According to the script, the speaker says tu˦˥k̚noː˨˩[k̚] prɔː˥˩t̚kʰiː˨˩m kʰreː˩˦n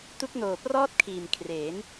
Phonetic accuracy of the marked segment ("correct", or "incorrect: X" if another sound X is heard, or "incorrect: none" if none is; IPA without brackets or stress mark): incorrect: none